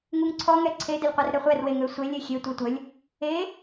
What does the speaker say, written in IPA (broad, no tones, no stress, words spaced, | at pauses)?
ŋuŋǀʰɔ ŋɛǀʰe dəlʲqʷerɾɛχʷɛr weŋøsʷelʲ exʲe tʷetʷəlʲ | e